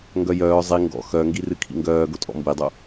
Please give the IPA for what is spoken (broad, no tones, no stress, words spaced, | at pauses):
ŋɡœjœː zˤi ŋɡɔ̰ xœŋɡirɨ kʰḭŋɡœː ɡotʼɔ̰mbidˤo